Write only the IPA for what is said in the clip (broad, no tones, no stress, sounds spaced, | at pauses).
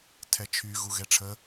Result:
tʰ ɛ t͡ʃʰ y ɣ u ɣ ɛ ʈ͡ʂʰ ə